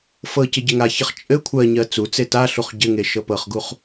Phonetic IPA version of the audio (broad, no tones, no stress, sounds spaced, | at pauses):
f ɤ c ɘ ɟ ɘ ŋ a ç ɘ χ t͡ʃʼ ɘ kʷʰ ɜ ɲ ɜ t͡s u t͡s e t a ɬ u χ ɟ ɘ ŋ e ʃ ɤ p ɤ χ ɡ u χ